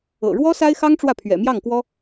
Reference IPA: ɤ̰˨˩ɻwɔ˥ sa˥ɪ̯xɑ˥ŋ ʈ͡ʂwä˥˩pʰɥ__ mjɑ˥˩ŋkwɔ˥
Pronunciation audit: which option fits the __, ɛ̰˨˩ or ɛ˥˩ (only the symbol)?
ɛ̰˨˩